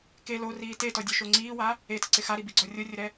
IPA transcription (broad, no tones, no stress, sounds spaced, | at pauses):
k e l o r iː t e t ɔ dʲ ʊ ʃ o ŋ͡ǀ iː w a | e t ɪ ǀ ɪ x a ɾ i b i ɡ͡ǀ ɔ rʲ o rʲ ʊ ɾ ɛ